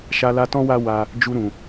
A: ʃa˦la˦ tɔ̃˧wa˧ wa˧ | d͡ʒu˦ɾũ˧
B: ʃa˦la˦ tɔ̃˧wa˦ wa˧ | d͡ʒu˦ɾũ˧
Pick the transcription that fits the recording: A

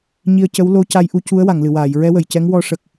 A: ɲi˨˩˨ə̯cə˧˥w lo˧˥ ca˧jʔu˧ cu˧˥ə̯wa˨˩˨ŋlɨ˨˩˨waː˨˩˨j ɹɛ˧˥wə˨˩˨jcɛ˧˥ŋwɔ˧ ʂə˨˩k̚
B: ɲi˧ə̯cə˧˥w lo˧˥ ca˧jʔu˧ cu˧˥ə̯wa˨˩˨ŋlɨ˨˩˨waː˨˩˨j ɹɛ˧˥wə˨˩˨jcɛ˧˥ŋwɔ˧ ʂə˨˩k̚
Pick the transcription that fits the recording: B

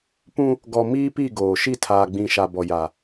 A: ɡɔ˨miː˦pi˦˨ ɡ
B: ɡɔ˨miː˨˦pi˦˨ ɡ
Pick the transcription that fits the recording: A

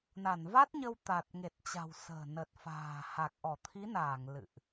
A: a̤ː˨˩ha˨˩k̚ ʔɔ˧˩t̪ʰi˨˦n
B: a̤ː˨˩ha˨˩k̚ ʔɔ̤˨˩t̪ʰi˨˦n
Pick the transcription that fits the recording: A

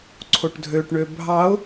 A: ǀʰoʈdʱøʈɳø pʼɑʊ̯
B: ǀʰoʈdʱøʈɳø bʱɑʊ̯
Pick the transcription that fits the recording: B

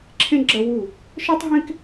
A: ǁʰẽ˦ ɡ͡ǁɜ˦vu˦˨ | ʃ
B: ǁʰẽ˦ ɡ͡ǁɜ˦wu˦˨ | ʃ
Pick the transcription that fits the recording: B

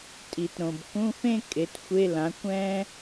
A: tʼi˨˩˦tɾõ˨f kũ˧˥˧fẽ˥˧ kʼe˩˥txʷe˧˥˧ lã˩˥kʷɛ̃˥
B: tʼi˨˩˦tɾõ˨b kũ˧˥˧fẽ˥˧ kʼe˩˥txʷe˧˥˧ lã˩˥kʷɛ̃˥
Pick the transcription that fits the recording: B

